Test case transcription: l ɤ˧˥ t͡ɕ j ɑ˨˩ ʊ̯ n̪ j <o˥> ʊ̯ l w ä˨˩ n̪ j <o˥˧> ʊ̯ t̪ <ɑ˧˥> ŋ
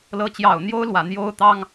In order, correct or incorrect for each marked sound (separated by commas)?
correct, incorrect, incorrect